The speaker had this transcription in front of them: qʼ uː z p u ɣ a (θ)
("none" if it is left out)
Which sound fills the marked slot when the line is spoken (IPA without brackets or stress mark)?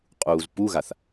θ